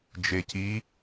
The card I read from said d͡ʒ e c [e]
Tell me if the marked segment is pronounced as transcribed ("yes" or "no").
no